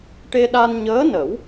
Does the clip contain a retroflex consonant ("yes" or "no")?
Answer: yes